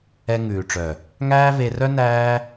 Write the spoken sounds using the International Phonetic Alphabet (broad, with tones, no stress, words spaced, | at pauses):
ɛ˧ŋʉː˨ʈ͡ʂœ˨ | ŋæː˦ve˧rœ˦ næː˦